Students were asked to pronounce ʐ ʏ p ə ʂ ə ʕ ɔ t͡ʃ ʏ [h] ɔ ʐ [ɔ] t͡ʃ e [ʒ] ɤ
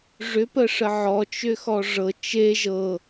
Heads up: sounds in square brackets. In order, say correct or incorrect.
incorrect: x, incorrect: ɤ, correct

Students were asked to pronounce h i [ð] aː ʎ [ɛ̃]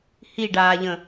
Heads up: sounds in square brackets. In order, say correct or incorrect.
incorrect: ɖ, incorrect: ə̃

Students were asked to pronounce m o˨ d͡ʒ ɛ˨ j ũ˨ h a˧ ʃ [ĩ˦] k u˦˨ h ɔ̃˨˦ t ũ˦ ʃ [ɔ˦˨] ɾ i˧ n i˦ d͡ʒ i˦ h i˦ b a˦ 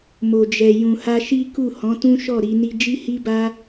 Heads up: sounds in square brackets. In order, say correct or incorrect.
incorrect: i˦, correct

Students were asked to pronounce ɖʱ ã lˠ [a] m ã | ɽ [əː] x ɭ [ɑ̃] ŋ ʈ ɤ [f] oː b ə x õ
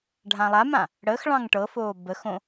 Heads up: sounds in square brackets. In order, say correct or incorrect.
correct, correct, correct, correct

